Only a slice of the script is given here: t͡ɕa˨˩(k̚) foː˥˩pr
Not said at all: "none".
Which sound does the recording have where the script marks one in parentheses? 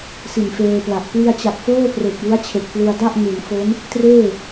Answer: k̚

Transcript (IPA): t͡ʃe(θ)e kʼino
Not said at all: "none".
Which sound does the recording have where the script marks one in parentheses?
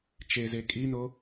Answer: z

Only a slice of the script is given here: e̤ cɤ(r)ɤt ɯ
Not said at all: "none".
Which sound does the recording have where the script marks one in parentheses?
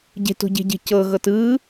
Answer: ɣ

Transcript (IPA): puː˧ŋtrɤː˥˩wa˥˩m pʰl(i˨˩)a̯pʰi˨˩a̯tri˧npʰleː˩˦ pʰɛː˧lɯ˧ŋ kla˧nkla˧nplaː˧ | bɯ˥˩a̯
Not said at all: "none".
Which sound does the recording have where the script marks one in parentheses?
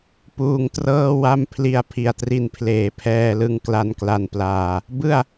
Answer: i˧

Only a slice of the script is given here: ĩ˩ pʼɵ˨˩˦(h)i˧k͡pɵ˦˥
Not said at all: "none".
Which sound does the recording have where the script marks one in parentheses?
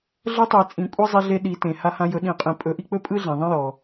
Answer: ʔ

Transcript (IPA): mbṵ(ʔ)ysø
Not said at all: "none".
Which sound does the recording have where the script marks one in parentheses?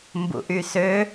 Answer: ʔ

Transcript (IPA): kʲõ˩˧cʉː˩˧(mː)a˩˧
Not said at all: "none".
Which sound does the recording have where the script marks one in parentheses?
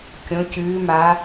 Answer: m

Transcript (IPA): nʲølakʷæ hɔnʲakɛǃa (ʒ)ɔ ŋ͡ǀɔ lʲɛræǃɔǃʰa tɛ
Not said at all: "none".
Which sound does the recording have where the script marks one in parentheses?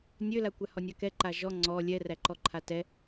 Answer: ʒ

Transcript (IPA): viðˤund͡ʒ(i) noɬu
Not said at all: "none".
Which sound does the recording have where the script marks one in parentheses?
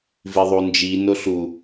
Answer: i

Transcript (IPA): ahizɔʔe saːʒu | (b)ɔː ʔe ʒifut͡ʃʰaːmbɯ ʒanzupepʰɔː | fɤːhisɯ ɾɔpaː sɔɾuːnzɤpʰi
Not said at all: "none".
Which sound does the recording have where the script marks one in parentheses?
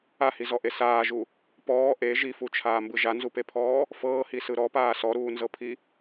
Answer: p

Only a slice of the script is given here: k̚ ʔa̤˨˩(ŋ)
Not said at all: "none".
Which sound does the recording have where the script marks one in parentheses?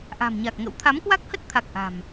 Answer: m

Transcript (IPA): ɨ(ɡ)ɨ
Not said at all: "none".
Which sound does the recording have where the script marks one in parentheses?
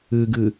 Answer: ɡ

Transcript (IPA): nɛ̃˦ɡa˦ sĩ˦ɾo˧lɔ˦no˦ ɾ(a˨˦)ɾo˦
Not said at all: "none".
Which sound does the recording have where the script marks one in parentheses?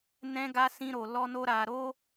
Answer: a˧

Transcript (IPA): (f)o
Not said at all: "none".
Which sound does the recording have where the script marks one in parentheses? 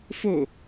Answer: f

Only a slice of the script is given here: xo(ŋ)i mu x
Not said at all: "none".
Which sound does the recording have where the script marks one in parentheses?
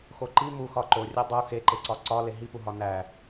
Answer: ǃ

